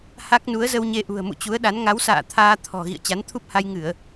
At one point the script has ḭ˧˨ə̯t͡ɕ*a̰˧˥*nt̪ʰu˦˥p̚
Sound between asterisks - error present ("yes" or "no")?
yes